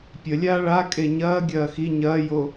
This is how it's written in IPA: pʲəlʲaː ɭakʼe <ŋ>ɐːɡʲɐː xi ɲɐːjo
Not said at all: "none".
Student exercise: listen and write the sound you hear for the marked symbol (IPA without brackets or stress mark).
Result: ɲ